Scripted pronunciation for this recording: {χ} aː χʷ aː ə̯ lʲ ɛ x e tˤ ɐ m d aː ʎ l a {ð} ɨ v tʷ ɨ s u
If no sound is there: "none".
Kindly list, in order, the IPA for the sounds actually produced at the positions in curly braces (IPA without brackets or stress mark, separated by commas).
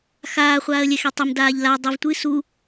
x, dˤ